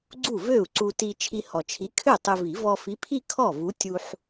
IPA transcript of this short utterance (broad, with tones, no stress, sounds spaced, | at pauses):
ɡ͡ǀ u˥˩ v ø˥˩ u̯ ǀ u˧ t i˧ t͡ʃʰ i˧ h ɔ˨˩ t͡ʃʰ i˨˥ kʰ ø˥˩ tˤ ø˧ v i˨˩˦ v ɔ˧ f i˨˥ pʰ i˥˧ kʰ ɔ˥˩ v u˨˥ tʲ u˧ ħ